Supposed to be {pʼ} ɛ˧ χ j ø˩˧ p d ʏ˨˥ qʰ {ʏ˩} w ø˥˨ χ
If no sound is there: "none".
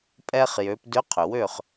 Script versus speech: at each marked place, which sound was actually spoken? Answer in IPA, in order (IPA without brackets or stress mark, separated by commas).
pʼ, ʏ˩